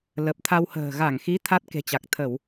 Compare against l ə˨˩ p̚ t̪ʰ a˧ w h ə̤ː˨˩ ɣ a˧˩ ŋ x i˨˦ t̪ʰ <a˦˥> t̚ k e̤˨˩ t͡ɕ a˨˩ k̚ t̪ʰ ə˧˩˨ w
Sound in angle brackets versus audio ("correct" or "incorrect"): correct